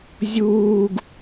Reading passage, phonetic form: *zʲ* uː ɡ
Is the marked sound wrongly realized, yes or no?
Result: no